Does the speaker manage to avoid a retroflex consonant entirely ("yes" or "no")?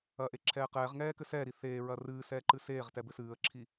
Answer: yes